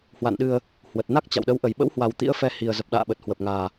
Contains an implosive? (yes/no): yes